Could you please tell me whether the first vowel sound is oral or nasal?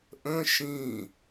nasal